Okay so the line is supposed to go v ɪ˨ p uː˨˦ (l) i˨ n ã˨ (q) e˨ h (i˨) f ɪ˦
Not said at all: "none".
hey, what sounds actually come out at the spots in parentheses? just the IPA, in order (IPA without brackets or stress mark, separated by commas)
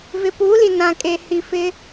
l, kʼ, i˨